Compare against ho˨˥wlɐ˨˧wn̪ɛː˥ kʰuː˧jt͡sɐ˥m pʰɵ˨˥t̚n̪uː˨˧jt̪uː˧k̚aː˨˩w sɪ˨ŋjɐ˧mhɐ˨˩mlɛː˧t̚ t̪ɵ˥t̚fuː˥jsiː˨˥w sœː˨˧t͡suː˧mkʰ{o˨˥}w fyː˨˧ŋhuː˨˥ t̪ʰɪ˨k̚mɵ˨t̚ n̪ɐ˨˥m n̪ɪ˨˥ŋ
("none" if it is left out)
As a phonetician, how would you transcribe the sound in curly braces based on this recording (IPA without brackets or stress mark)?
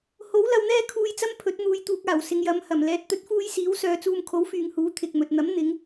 o˨˥